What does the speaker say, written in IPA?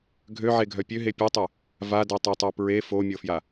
ɡʱ ø ʕ e ɡʱ œ pʲ ø ɦ e pʲ e tˤ ø | v a d ɜ tˤ ɜ tˤ ɜ p ɹ e f o mʲ ɤ f j a

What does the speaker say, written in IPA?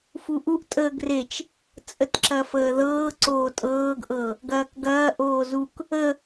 f u ʔ u ʔ tʼ əː ɡ r e t͡ʃ | t͡sʼ ə t ǁ ɐ f əː ð ɤː ǀ oː tʼ ɤː ɡ ʔ ɤ | ɡ ɐː k ɡ ɐː ʔ oː z u k | ə

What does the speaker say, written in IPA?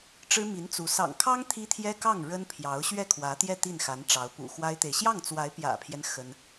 ʈ͡ʂ ɻ̩˥ m i˧˥ n t͡s u˧˥ s ɑ̰˨˩ ŋ kʰ ɑ˥ ŋ t̪ʰ i˥ t̪ʰ j ɛ˥ k ɑ˥˩ ŋ ɻ ə˥ n pʰ j ɑ˧˥ ʊ̯ ɕ ɥ ɛ˥˩ kʰ w ä˧˥ t̪ j ɛ˥˧ t̪ i˥˩ n x a˧˥ n ʈ͡ʂ ɑ˧˥ ʊ̯ p ṵ˨˩ x w a˥ ɪ̯ t̪ e˨ ɪ̯ ɕ j ɑ˥˩ ŋ t͡s w a˧˥ ɪ̯ p j ä̰˨˩ pʰ j ɛ˦ n x ə˥ n

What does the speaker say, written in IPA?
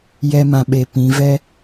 j ɛ˦ m ã˧ ɓ e˧ p ĩ˨˦ v ɛ˦

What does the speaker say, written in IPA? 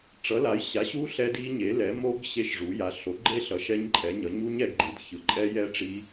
ʈ͡ʂ ʌ˩˥ l a˩˥ j ɕ a˩˥ ɕ u˦˥ ɬ ɛ˦˥ d i˦˥ ɲ e˩˥ l ɛ˩˥ m o˦˥ ɡ ɕ e˦˥ ʃ ʐ u˩˥ j a˩˥ ɬ o˩˥ ɡ͡ǃ e˦˥ ɬ ʌ˩˥ ʃ ɛ˦˥ ɲ ǃʼ ɛ˩˥ ɲ ʌ˩˥ ɲ u˦˥ ɲ ɛ˩˥ ɡ ɡ͡ǃ i˩˥ d ç ɯ˩˥ ǃʼ ɛ˦˥ j ɛ˦˥ ʈ͡ʂ i˦˥

